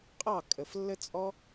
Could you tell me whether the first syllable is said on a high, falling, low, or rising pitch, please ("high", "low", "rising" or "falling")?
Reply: falling